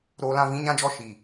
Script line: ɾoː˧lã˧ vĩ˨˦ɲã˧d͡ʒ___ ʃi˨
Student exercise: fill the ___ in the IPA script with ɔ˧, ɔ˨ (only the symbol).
ɔ˧